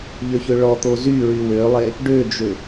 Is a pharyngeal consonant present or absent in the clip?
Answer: absent